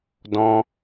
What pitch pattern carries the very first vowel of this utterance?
high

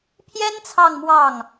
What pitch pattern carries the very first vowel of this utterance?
high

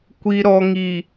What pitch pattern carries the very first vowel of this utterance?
low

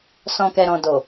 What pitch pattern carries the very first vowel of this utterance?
low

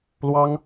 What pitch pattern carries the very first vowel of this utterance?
high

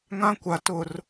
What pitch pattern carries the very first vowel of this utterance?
high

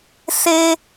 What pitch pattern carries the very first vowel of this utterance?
high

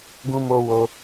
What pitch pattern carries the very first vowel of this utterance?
high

